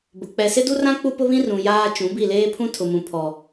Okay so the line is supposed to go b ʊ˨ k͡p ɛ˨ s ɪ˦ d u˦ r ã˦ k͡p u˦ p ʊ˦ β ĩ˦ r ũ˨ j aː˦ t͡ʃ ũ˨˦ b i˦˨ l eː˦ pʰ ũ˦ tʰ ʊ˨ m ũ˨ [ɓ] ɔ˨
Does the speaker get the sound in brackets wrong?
yes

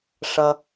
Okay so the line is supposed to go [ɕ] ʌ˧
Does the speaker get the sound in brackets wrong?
yes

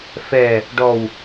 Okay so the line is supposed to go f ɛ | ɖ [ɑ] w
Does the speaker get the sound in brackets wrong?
yes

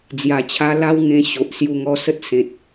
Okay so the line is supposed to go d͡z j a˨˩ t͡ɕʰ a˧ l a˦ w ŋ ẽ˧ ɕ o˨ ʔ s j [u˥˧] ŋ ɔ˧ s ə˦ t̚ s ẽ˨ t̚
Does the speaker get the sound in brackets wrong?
yes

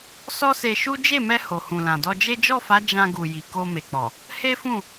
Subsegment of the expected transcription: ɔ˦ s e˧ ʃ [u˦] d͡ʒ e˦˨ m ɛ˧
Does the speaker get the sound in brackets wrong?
no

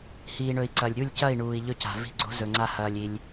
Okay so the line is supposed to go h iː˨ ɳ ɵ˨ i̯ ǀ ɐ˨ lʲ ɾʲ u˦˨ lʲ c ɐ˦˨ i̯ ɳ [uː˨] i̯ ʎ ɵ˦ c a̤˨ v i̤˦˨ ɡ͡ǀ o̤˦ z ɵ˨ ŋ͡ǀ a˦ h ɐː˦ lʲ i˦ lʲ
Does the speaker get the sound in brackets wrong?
no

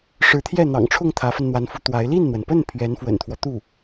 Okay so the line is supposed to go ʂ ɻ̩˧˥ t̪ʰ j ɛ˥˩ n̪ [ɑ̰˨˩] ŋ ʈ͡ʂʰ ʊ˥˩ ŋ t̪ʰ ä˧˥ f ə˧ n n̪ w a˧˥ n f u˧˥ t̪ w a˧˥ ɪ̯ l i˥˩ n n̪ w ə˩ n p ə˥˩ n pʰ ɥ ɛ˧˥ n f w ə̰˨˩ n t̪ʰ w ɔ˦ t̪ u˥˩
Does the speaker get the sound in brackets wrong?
no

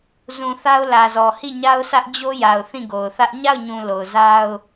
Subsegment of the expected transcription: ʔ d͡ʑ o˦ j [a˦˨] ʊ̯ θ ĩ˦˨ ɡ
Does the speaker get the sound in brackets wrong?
yes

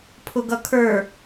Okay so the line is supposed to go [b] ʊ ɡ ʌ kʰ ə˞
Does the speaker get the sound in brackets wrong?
yes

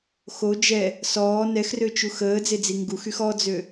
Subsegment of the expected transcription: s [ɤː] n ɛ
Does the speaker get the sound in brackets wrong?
yes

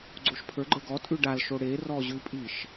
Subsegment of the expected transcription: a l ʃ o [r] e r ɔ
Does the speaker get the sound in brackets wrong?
yes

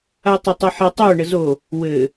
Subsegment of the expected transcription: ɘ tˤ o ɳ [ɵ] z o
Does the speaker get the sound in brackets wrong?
yes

